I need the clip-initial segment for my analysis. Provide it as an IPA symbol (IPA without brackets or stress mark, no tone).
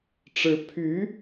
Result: ʈ͡ʂ